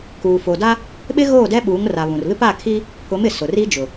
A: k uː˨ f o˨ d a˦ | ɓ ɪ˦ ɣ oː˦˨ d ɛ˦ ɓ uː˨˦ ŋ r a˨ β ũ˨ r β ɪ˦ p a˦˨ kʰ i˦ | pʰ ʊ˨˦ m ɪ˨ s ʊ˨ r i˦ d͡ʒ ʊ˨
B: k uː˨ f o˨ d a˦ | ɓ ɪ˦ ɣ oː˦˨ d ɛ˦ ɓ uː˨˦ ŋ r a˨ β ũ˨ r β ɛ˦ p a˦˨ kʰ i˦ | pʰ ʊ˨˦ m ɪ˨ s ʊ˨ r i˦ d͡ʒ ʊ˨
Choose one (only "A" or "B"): A